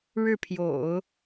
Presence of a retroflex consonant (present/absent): present